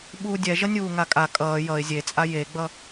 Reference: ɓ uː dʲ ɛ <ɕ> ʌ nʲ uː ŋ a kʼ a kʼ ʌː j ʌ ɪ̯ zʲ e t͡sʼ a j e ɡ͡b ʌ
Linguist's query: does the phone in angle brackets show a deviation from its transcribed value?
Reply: yes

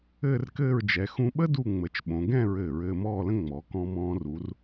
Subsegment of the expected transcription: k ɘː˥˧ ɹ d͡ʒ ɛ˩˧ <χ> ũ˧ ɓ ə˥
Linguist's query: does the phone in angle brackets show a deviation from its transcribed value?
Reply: yes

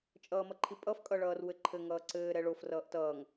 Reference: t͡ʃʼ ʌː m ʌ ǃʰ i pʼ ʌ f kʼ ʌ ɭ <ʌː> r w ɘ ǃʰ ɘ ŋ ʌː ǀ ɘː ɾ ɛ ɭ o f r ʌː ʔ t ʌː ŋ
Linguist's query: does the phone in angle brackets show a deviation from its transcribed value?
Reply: no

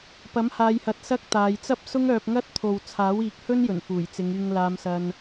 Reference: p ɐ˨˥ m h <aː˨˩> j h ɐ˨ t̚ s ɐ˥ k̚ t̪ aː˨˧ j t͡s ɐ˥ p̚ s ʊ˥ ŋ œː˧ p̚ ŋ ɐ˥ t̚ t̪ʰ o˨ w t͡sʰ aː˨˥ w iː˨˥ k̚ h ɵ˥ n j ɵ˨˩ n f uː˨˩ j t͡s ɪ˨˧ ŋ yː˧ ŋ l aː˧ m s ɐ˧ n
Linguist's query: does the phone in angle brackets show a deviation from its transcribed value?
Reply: yes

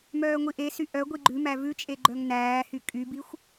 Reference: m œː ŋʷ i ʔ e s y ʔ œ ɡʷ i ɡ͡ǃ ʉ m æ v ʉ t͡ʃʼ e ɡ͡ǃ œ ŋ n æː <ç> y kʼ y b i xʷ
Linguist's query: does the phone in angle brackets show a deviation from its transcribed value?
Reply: yes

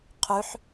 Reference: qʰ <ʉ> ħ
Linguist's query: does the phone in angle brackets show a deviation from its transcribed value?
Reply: no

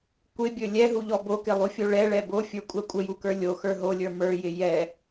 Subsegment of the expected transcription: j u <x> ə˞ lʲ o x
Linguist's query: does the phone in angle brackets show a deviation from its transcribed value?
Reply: yes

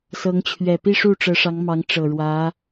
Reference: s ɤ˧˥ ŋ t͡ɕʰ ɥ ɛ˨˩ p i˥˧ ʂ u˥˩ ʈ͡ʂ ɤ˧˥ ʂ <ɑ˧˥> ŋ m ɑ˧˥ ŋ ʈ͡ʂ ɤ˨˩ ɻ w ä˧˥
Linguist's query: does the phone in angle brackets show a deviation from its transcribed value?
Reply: no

